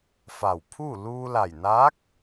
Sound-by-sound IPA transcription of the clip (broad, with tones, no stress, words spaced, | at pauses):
fa˧˩wpʰuː˥˨ luː˧la˧˩jnaː˧˥k̚